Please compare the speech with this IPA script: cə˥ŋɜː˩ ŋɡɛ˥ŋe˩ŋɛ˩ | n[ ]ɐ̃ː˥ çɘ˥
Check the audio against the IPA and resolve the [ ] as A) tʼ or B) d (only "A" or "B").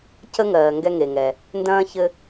B